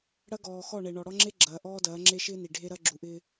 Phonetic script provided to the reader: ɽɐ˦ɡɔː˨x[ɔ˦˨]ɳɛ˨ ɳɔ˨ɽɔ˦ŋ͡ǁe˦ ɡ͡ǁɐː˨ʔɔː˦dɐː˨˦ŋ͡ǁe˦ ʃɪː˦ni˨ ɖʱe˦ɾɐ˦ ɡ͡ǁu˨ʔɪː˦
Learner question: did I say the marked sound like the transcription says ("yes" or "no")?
yes